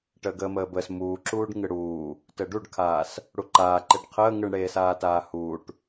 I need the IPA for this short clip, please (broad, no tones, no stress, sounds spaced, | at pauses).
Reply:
ʈ əː ɡ əː m əː b əː s m uː ǁ uː ɖ ŋ ɯ ɽ uː | t əː ɖ u ɖ kʰ aː s | ɽ u ǃ aː ǃ e ɖ qʰ əː ŋ ɯ ɳ ɽ eː s aː t aː h uː ʈ